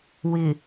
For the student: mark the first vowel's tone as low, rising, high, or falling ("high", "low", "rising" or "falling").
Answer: low